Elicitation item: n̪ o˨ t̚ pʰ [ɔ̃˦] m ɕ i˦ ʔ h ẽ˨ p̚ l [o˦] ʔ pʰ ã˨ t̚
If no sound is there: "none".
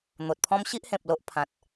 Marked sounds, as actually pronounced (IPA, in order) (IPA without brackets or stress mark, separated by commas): ɔ̃˦, o˦